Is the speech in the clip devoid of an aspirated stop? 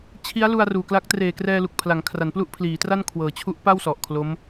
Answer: no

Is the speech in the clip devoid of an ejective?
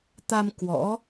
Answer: yes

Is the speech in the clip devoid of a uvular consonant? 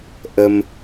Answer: yes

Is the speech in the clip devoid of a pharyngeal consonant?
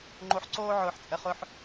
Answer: no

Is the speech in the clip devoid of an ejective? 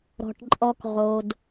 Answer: no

